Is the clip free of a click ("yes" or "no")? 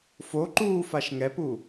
no